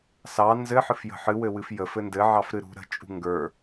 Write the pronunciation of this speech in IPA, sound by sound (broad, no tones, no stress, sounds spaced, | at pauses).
s ɑ n z ɘ ħ ɨ f j ə̤ ħ ɨ w ɘ w ɨ f j ə f ɘ n d ɘ ʕ ɑ f ɾ ɨ ɾ ṳ ɾ ə̤ t͡ʃʼ ṳ ŋ ɡ ə˞